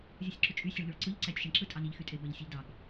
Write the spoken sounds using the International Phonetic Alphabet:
zʲ ɯ sʲ ǁ u t͡ʃʼ y sʲ e ɭ ʎ o ɭ ǀ ɯ ʎ ǀ æ tʲ ʃ e ɳ ǁ ɯ tʼ ɑ n i ʎ x y tʼ e b æ ʎ sʲ ɯ ʎ d ɑ ɡ

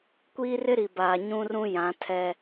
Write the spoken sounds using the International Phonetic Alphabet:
kʷ iː˦ r ɪ˦ ɾ i˨ b aː˨ ɲ ũ˦ r ũ˦ j ã˨˦ tʰ ɛ˦

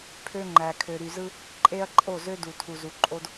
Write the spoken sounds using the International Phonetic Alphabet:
pʰ ø˦ ŋ͡ǃ æ˨ kʰ ø˨ ɾ y˨ z ɯ˦ | ǃʼ e˦ ɐ̯ ǃʼ o˦˨ z ø˦ d u˨ tʰ u˨ z u˨ ǃʼ o˦ d

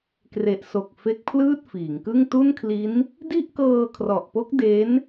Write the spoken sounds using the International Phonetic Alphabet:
k r e˨˩ ʔ s o˨˩ k̚ f e˦˥ k̚ pʰ l ɯː˥˩ t̚ f iː˩˦ ŋ k ɯ˥˩ ŋ t u˥˩ n kʰ l i˦˥ n | d i˥˩ ʔ k ɤː˧ kʰ r ɔ˨˩ ʔ p o˦˥ k̚ d e˦˥ n

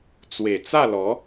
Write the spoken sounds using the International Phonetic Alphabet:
t͡s w e˨˩ t͡s a˥˧ l ɔ˨˦

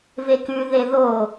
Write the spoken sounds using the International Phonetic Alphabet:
v e k ʉ ð e ð o

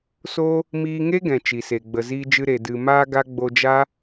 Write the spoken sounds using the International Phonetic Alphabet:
s o˦ | m iː˧ ŋ e˦ ɡ ɛ̃˨ t͡ʃ i˨ s e˨ ɡ͡b ə˨ z iː˧ d͡ʒ ɨ˧ ɾ e˨ d ɨ˨ m aː˧ ɡ a˧ ɡ͡b o˧ d͡ʒ a˦

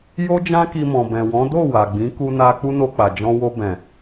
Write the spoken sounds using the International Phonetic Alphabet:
j o˧ d͡ʒ ã˧ k i˨ m ɔ̃˨ b ɛ̃˨ w ɔ̃˨˦ d o˦˨ w a˨ ɡ͡b ĩ˨˦ k u˧ n a˧ k͡p u˦ n o˧ k͡p a˨ d͡ʒ ɔ̃˧ w o˧ b ɛ̃˨

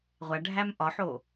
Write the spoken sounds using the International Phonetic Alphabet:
ʁʷ æ ɖʱ æ m ʔ ɒ ħ o

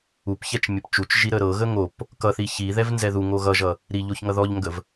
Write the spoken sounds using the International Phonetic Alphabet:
u p ç ɛ t͡ʃ mʲ ə p t͡ʃ u t͡ʃ ʒ i ɾ ə ɾ ɤ ɣ ə ŋ o p | k ʌ θ i ç i ð ɛ v n z ɛ ð u ŋ o ɣ ʌ ʒ ʌ | ɾ i ʎ o ç ŋ ʌ ð ɔ ʎ ŋ ɡ ə v

